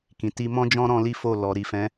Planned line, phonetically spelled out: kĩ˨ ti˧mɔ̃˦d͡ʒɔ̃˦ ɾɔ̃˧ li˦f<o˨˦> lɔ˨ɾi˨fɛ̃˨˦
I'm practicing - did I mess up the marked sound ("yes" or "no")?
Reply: yes